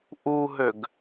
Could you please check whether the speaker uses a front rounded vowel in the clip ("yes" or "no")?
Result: yes